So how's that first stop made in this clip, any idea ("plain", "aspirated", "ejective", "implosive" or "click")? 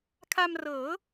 aspirated